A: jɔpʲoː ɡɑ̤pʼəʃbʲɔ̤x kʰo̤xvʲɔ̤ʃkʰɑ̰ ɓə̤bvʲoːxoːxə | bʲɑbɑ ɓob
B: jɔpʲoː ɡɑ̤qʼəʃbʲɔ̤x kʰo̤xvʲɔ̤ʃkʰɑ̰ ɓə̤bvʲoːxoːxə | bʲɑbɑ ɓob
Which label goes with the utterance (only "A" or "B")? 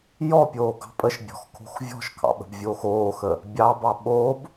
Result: A